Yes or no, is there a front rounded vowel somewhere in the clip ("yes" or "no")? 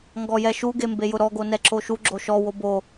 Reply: no